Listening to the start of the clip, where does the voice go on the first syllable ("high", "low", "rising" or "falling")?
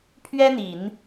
high